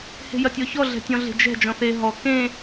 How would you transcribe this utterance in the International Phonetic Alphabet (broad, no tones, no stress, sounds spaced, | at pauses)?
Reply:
h e̤ j ɐ tʲ ɔ ç ɔ ɮ ɛ̤ tʲ ɔ̃ ɮ e̤ d͡ʒ ɛ̤ d͡ʒ ɔ̃ θ e ɦ ɔ k ẽ